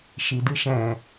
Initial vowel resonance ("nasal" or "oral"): oral